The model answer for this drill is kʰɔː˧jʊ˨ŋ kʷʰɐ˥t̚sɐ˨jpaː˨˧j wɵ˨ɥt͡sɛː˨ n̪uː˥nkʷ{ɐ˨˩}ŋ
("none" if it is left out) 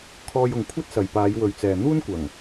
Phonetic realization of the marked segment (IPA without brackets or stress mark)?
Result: ɐ˨˩